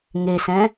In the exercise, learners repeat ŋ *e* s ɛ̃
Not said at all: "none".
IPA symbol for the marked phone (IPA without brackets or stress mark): e